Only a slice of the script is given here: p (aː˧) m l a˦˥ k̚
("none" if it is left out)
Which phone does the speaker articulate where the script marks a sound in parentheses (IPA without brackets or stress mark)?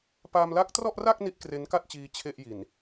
aː˧